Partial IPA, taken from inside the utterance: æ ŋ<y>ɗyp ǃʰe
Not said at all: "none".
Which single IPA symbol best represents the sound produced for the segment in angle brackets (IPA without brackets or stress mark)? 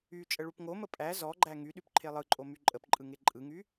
y